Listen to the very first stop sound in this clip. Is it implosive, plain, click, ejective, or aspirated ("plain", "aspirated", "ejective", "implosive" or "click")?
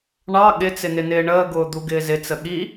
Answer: implosive